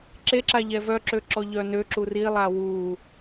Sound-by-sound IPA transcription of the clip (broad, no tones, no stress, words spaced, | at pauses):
ǁeǁaʎɛ vœǁø ǁɔʎœnøǁu rilˠa wu